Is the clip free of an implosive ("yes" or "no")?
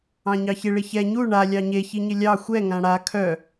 yes